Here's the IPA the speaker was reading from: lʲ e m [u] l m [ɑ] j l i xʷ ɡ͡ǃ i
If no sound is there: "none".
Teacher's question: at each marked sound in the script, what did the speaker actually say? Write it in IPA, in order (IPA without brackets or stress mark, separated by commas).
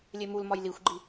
u, ɒ